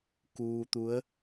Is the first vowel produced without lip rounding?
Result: no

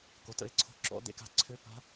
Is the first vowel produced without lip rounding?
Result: no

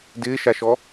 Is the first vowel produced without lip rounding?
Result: yes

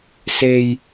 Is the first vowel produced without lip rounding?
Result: yes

